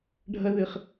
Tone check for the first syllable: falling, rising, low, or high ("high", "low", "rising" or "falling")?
high